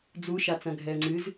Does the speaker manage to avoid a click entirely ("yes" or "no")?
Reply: no